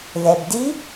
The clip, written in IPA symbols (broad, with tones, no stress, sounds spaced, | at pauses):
ð ɛ˩ b d i˧˥